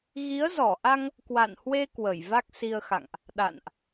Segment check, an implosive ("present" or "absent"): present